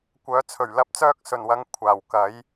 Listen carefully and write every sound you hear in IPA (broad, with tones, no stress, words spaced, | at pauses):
kʷœː˨˥t͡sʰɵ˨˩ɥ lɐ˨p̚t͡sœː˥k̚sɵ˨˩nwɐ˨˥ŋ kʷʰaː˨˩wkɐ˨˥j